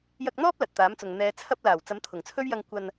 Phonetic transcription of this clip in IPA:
j ɐ˧ k̚ n̪ ɔː˥ p̚ l ɐ˨ t̚ t̪ aː˨˥ m t͡s ʊ˨ ŋ n̪ ɛː˨˧ t͡sʰ ɐ˧ p̚ l aː˨˩ w t͡s ɐ˨˥ m t̪ʰ ʊ˨˩ ŋ t͡sʰ ɵ˥ ɥ j ɐ˧ ŋ kʷ ɐ˨ n

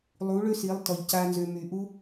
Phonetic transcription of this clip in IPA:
lˠ u˨˦ ɭ ø˦ s i˨˦ lˠ t ɔ˨ ʎ c a˦ n z ø˧ m y˨ ʔ u˦

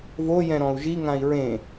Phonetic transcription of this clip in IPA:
v o j ɛ̃ ɾ ɔ̃ u̯ ʒ i ŋ ã i̯ ɹ ẽ

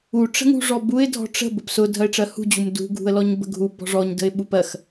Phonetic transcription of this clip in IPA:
u ʈ͡ʂ ə̤ ŋ ṳ ʐ ɔ b u ɪ̯ dʱ ɔ̤ ʈ͡ʂ ə̤ b ʊ p s ʊ dʱ ɜ ɪ̯ ʈ͡ʂ ɜ h ṳ d͡ʑ u m d ṳ ɡʱ ṳ ə̯ l ɔ ɲ b ə̤ ɡʱ u b ɔ̤ ʐ ɔ ɲ d ə̤ ɪ̯ ɓ u p ɜ x

